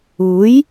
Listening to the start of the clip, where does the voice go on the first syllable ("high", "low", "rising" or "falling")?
rising